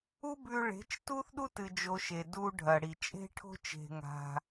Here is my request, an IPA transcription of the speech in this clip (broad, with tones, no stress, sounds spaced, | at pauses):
u˦ b ʉ˧ ɭ e̤˨˦ t͡ʃ t u˦ θ ɗ u˦ t ɨ˨ d͡ʒ o˨ ʃ e˨ d u˧ ɖʱ ɐ˨ ɽ i˨ t͡ʃʼ e̤˦ ʈʰ o̤˦ t͡ʃ e̤˧ ŋ a̤˧